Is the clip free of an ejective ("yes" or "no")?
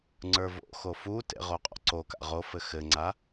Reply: no